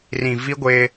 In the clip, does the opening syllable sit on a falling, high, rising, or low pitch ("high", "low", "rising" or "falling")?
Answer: low